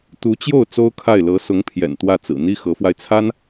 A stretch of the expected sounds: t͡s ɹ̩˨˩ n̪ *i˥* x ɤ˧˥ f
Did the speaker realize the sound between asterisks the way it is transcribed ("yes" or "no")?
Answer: yes